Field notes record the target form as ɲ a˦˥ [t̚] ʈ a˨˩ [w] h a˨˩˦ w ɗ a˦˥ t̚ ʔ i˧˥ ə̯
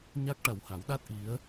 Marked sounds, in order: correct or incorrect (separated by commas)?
incorrect, correct